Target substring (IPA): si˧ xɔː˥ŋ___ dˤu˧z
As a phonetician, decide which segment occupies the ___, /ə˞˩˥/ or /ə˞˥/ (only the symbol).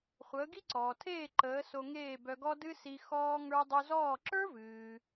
ə˞˥